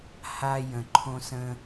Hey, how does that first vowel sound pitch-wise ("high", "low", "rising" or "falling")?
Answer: high